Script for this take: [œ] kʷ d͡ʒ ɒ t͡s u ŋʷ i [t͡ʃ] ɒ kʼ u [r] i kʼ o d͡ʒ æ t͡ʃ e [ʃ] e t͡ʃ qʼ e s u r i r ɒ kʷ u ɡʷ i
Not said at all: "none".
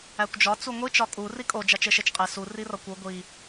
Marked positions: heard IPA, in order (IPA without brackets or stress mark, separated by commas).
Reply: æ, t͡ʃ, r, ʃ